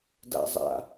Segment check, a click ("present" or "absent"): absent